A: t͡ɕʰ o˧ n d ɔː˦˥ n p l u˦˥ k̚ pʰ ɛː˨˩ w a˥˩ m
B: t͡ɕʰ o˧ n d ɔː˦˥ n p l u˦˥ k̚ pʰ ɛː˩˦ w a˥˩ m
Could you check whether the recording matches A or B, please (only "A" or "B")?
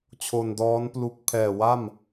A